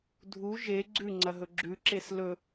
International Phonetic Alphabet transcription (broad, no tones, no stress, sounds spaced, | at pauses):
dʱ u ʒ e ɡ͡ǀ ʉ ŋ͡ǀ ɐ ɦ ɵ ɡ͡ǁ ʉ ǁ e s l ɵ